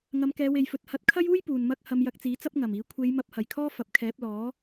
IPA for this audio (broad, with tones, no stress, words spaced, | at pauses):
ŋɐ˨˧mkɛː˨˧we˨jfɵ˨˥t̚ hɐ˧t̚ kʰɐ˥juː˥j puː˨nmɐ˥k̚ hɐ˧mjɐ˧k̚t͡siː˨˥t͡sɐ˥p̚ ŋɐ˨˩miː˨˥ kʷʰe˨˧j mɐ˧p̚hɐ˨˩jkʰɔː˥ fɐ˨˥p̚kʰɛː˨˥p̚ lɔː˨˥